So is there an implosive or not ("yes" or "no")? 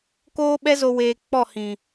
yes